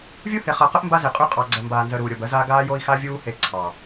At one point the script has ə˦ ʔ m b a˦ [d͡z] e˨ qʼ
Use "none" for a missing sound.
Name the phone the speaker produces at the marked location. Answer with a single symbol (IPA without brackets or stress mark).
z